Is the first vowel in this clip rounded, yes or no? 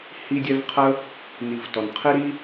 no